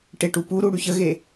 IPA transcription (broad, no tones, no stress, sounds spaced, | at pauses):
ʈ e ʈ u p u ɾ u ɽ y ç ə ɣ e